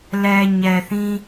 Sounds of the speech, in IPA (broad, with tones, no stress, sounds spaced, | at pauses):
l ɛ˨ ɲ ɛ˨ θ ĩ˦